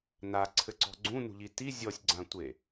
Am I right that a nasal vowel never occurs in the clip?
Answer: no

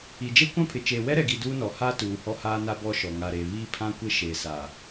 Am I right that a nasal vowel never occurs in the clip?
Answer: no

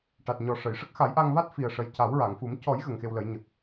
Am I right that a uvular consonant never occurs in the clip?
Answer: yes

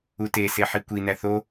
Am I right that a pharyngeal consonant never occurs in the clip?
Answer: no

